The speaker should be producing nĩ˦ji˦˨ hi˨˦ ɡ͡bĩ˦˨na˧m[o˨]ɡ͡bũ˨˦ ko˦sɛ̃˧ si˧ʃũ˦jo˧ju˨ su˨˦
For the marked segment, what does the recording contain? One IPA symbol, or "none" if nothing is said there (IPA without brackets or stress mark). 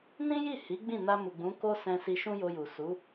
u˨